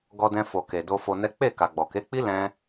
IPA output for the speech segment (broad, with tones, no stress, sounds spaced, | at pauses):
ɡ ɔ˧ d ɛ̃˧ f o˨ k e˨ d o˧ f o˧ n ɛ˦ k͡p e˦˨ k a˨ ɡ͡b ɔ˨ k e˨˦ k͡p i˦ l ɛ̃˦